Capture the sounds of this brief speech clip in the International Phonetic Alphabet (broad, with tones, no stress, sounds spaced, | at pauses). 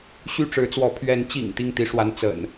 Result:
ɕ y˥˨ ʈ͡ʂ ɻ̩˨˦ t͡s w ɔ˨˦ pʰ ɥ ɛ˨˦ n t͡ɕ ḭ˨˩ ŋ t̪ i˥˨ ŋ t̪ i˨˦ ʂ w a˨˦ n t͡s ə̰˨˩ n